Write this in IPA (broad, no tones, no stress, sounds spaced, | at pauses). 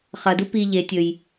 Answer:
χ ɐ d u p i ʎ e tʲ ɵ j